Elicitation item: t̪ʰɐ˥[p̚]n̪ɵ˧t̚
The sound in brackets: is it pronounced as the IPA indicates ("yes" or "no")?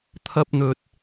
yes